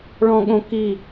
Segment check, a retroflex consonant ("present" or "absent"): present